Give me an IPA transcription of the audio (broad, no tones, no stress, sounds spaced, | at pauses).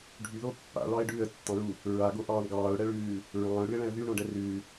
ɖʱ y ð o pː a̰ ɭ ɑ ɪ̯ ɖ ʉː ə̯ tː ɑ̃ ɹ u | ɹ a ɡ o ʔ ɑː ɳ ɡ ɑː ʊ̯ ɽ ɛ ɭ ʉː | ɹ ɑ̃ː ʊ̯ ɽ ʉ ɪ̯ ɭ ɛ̃ ə̯ ð y ɳ õ ɖ ɛ r ʉː